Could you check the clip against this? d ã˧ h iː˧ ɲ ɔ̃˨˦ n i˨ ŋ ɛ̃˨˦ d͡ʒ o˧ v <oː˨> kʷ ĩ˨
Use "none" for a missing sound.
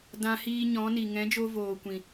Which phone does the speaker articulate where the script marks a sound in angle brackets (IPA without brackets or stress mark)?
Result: oː˨